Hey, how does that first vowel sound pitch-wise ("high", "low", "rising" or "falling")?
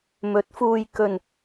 rising